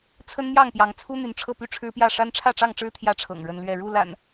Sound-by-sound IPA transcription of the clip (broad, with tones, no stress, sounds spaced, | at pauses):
t͡sʰ ə˦ n m j ɑ˥˨ ŋ p j ɑ˨˦ ŋ t͡sʰ u˦ n̪ y˨˦ n ʈ͡ʂʰ ɤ˥˨ p y˥˨ ʈ͡ʂʰ ɻ̩˦ p j ä˥˨ ʂ a˦ n ʈ͡ʂʰ ä˥˨ ʈ͡ʂ ɑ˥˨ ŋ ʈ͡ʂ ɻ̩˦ t̪ʰ j ä˦ ʈ͡ʂʰ ɤ̰˨˩ ŋ ɻ ə˦ n l ɥ ɛ˥˨ ɻ u˥˨ l a̰˨˩ n